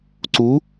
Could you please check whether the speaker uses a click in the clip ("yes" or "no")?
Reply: yes